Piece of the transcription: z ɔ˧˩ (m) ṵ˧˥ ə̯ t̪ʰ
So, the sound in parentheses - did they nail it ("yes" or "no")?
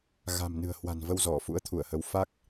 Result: no